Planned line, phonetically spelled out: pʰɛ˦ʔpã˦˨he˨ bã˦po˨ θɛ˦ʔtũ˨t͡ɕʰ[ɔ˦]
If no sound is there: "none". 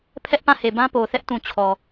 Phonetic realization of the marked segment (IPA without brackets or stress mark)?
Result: ɔ˨